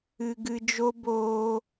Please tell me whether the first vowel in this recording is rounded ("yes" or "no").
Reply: no